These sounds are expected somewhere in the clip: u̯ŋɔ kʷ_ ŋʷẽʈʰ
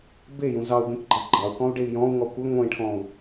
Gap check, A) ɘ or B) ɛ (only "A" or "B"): A